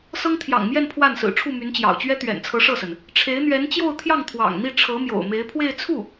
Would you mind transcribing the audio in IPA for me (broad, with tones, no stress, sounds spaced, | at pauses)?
s ɤ˥ ŋ t̪ʰ j ɑ̰˨˩ ŋ m j ɛ˥˧ n pʰ w a˥˩ n s ɹ̩˨˩ ʈ͡ʂʰ u˥˩ m y˧˥ n t͡ɕ j ɑ̰˨˩ ʊ̯ t͡ɕ ɥ ɛ˥ t̪ ɥ ɛ̰˨˩ n t͡sʰ ɤ˧˥ ʂ ɤ˥˩ s ə˩ n | ʈ͡ʂʰ e˧˥ ɪ̯ n̪ ɥ ɛ˧˥ n t͡ɕ j o˥˧ ʊ̯ t̪ʰ j ɑ˥˩ ŋ t̪ʰ w ɑ̰˨˩ ŋ n̪ i˥˩ ʈ͡ʂʰ ɤ˧˥ m j o̰˨˩ ʊ̯ m e˧˥ ɪ̯ pʰ w e˥˧ ɪ̯ t͡sʰ u˥˩